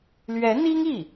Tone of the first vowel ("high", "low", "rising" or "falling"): rising